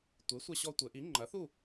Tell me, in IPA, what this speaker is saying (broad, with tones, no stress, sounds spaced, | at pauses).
tʷ e˩˥ sʷ ɐ˧ ɕ ɔ˧ tʷ ɘ˩˧ ʔ i˩˥ ŋ͡ǃ ɐ˩˥ θ u˥˨